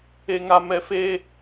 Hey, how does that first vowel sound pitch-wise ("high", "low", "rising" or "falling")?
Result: low